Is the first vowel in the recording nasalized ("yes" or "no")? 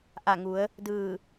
no